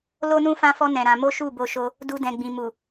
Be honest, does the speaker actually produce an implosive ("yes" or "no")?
no